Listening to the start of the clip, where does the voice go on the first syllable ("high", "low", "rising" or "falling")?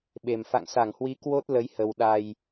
low